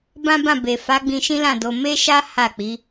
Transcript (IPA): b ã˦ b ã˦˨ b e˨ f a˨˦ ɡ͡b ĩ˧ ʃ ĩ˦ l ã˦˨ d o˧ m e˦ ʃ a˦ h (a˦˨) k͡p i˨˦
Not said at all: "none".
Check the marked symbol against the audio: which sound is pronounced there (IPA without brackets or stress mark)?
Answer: a˦˨